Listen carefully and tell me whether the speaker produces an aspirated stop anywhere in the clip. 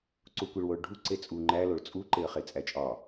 no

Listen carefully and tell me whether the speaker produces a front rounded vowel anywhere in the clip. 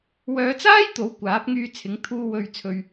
yes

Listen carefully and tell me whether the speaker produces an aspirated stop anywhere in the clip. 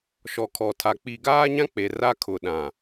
yes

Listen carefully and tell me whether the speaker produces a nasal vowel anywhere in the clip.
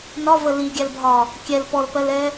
no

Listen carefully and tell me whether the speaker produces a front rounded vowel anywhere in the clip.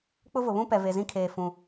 no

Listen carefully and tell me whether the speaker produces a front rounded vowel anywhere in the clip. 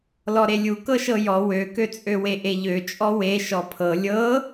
yes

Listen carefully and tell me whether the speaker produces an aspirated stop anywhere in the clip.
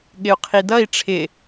yes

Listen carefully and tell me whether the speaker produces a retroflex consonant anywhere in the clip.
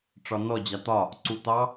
yes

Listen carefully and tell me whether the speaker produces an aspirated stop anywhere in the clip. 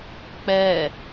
no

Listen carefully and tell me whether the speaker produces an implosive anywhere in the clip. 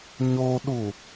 yes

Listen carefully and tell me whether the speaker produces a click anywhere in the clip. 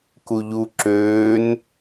yes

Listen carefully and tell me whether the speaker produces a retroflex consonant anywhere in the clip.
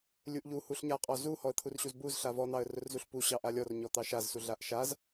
no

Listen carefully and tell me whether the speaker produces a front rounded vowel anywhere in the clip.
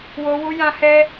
no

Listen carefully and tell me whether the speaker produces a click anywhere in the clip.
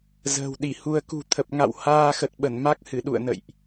no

